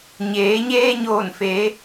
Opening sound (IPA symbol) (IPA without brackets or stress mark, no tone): ɲ